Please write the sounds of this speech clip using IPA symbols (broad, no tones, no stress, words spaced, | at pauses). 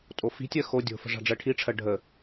tʼofi̤tʲɜ xo dʲo̤fə̤ ʐa̤ɖ͡ʐɜʈʰiʈ͡ʂʰɜ ɖʱə